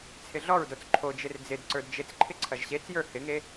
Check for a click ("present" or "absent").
present